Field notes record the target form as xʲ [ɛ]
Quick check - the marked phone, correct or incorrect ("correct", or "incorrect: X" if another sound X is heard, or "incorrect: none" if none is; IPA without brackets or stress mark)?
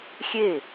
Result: incorrect: e